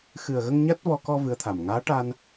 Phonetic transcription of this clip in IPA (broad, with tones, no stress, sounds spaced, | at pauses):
x ɨ˨˩ ə̯ ɣ ə˧ ŋ ɲ a˦˥ t̚ v ɔ˧ k ɔ˧ v ɨ˧˥ ə̯ t̪ʰ a˨˩ m ŋ aː˧˥ ʈ a˧ n